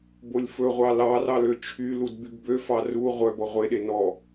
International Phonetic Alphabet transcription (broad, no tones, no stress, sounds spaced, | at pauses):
b o lʲ f ɵ ʁʷ ɑ l ɑ r ɑ l ø t͡ʃʰ y l u d b y ɡ b ø f ɑ r u ʁʷ œ b ɔ ʁʷ e ɗ e n ɔ